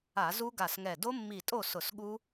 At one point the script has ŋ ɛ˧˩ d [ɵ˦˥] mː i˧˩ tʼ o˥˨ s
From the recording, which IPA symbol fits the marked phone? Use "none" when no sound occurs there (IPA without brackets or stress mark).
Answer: o˦˥